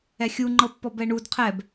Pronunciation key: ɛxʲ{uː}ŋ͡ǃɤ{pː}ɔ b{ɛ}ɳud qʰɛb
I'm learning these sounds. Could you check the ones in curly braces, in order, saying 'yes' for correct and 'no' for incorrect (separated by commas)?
no, yes, yes